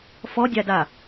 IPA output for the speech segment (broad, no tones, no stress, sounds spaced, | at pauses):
f ɔ dʲ a d a